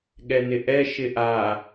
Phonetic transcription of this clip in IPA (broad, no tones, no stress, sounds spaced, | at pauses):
ɠ ɛ n ɪ ʔ ɛ ʃ ɪ ʔ a